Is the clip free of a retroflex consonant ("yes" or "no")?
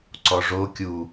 no